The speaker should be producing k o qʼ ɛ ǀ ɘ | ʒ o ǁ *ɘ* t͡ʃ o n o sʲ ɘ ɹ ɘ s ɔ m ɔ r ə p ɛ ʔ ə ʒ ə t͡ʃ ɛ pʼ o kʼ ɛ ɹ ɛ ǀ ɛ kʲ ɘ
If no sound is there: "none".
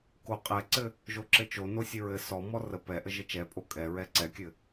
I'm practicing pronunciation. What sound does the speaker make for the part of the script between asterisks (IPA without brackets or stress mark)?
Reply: ɘ